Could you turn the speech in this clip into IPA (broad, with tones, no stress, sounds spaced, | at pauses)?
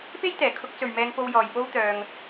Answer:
p e˥ j t̪ ɛː˨˩ kʰ ʊ˧ k̚ t͡s ɵ˨ ɥ m ɛː˧ ŋ p o˧ w j ɔː˨ j p o˥ w t̪ œː˧ ŋ